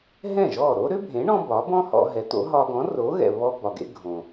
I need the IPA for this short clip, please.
ɦ ɛ̃˥˩ ʒ ɔ˥˩ ɾ o˥ ɾ ø˥ bʱ ẽ˩˥ ɳ ɔ̃˧ b ɒ˩˥ b ɔ̃˥ h ɔ̰˧ ɦ ɛ˩˥ t̪ o̰˩˥ ɦ ɒ˧ ɡ ɔ̃˩˥ r o˩˥ ɣ ɛ̰˩ β ɔ˧ b ɒ˩ ɡ ḛ˧ ɡʱ õ˩

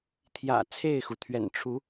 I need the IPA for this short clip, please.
t̪ʰ j ä̰˨˩ t͡sʰ e˥˨ ɪ̯ x u˩ t̪ʰ ɥ ɛ̰˨˩ n ʈ͡ʂʰ u˨˦

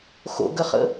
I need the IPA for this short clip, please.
x o̰ ɡ ə χ ə̰

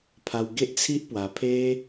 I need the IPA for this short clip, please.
pʰ a˧ w ɡ e˦ ʔ t͡sʰ i˦ ʔ p w a˧ pʰ e˦

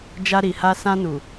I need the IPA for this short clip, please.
d͡ʒ a˧ ɾ i˨ h a˧ s ã˧ n u˨

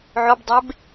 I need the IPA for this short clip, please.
ʕ o b dˤ e b

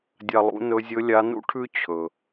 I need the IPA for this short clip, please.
dʲ a˧ lˠ ṵ˧˥ n ɵ˧˥ zʲ ɵ˧˥ lʲ a˧˥ n ṵ˥ ʈʰ ʉ˥ t͡ɕʰ ɵ˩

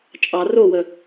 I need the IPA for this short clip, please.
t͡ʃʼ ɑ r o w ə

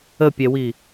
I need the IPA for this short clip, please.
ə pʲ ɛ w i

